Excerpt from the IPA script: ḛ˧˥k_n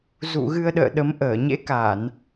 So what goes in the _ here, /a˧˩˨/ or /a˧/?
a˧˩˨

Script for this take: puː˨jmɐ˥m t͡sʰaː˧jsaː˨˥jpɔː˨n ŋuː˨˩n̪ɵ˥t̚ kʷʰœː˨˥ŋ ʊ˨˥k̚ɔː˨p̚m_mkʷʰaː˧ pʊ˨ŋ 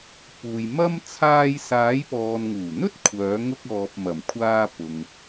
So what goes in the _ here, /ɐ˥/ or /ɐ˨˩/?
ɐ˨˩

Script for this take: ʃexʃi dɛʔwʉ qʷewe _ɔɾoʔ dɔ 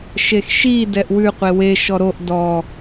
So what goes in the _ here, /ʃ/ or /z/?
ʃ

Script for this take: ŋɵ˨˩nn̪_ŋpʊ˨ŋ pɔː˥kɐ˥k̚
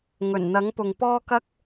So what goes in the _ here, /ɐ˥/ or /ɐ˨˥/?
ɐ˨˥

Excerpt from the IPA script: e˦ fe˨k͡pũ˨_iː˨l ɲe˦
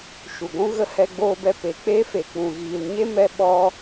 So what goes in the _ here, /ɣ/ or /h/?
ɣ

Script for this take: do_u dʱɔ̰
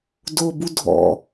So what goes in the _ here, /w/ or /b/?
b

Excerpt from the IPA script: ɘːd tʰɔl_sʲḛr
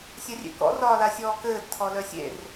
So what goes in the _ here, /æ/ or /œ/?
œ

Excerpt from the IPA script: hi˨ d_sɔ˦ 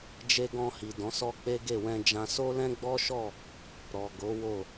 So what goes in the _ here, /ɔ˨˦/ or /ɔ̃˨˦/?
ɔ̃˨˦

